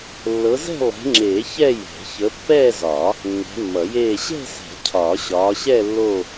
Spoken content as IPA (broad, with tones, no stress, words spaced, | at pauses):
lːɤ˨˦zɛ̤˥˧ lˠɛ̤˨˦ŋ͡ǁeː˨˩˦ çɛ˥˧jɛ̤˨˩˦ çə˨˦pːɛː˥˧zɒ˨˩˦ | nːɛ̤˨˦mːʌ˨˩˦jeː˥˧ ɕɛ̤˥˧sɛ̤˨˩˦ cʰɒː˨˩˦ɕɒː˨˦ɕɛ˥˧ lːo˥˧